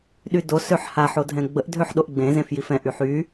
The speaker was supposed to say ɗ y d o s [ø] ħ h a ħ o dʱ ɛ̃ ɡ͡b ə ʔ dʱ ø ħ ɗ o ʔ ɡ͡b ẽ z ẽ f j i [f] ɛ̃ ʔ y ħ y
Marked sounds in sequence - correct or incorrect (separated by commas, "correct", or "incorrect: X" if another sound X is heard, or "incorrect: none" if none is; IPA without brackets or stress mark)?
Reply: correct, correct